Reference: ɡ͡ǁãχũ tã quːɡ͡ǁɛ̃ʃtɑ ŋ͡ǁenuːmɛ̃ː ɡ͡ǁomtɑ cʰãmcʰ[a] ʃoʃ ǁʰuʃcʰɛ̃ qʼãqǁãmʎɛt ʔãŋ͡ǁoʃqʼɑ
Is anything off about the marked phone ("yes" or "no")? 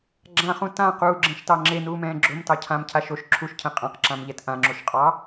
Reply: no